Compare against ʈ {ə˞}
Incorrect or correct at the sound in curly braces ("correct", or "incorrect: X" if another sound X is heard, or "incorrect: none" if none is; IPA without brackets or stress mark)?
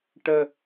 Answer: incorrect: ə